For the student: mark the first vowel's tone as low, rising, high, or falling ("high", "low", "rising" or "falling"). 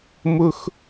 high